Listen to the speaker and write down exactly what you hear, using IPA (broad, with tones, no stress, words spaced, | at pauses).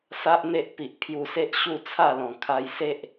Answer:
sa˦ʔn̪e˦ʔ pi˨ʔpʰju˧se˦ʔ ɕu˥˧t͡sʰa˥˧lɔ̃˨˩ kʰa˧jse˦ʔ